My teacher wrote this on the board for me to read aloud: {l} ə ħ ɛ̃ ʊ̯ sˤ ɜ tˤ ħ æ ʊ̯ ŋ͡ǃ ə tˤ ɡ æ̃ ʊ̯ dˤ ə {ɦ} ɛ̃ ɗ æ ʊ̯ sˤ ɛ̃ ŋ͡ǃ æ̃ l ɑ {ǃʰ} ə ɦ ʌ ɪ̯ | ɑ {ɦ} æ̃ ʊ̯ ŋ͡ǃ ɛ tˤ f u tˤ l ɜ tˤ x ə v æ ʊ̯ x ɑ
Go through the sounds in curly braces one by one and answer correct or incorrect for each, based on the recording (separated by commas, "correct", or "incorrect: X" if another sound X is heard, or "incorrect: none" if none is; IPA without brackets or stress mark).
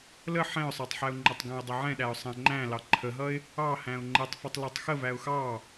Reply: correct, incorrect: ʕ, correct, incorrect: h